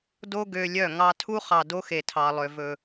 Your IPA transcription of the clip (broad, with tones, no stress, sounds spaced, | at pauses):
d o˦ ɡ ø˧ lʲ œ˦˨ ŋ ɑ˧ tʰ u˦ χ ɑ˨ d o˦ x e˨ tʰ ɑ˨ lˠ ø˨ v ɵ˨